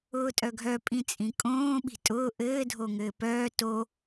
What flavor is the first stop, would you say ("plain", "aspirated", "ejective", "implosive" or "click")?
ejective